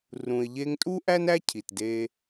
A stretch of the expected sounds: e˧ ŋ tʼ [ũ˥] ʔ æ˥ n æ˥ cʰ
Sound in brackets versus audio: incorrect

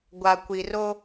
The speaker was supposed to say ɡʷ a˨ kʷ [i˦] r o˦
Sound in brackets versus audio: incorrect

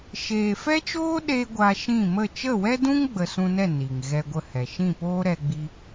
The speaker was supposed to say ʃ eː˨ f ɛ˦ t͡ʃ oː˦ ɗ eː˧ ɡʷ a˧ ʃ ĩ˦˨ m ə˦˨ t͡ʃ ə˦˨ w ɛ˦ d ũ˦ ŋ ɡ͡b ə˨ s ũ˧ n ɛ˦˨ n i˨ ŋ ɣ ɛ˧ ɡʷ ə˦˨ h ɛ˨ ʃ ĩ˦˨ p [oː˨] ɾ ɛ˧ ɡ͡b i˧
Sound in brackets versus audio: incorrect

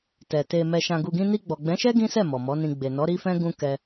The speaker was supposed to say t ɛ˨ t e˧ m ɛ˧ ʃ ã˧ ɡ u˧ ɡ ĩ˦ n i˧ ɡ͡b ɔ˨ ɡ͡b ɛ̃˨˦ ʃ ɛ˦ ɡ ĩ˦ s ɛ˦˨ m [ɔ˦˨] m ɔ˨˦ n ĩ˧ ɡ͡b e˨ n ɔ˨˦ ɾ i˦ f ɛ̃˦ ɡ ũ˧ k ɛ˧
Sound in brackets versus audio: incorrect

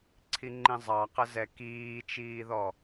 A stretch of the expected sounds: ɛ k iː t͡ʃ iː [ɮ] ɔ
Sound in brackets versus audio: incorrect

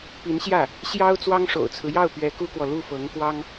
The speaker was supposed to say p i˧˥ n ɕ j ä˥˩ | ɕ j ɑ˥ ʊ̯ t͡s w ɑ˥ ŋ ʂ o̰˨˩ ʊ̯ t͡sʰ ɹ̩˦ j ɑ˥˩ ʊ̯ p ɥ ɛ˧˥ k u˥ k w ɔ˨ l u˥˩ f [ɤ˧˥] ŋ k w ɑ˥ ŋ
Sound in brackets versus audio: correct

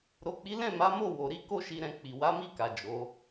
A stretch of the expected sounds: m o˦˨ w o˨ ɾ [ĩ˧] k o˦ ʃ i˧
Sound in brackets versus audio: incorrect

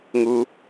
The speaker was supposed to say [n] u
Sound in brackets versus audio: incorrect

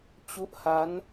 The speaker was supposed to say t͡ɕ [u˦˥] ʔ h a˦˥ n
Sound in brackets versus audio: correct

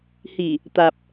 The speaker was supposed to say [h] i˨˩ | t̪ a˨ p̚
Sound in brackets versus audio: correct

